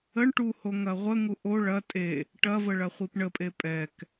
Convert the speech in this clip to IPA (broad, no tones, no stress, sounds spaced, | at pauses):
ə ɳ ʈ u h o ŋ ɐ ʁʷ ə ŋ u ʔ o ɭ ɐ tʼ e | ʈ ɐ v ə ɭ ɐ χʷ i p ɳ ə pʼ e pʼ ɛ k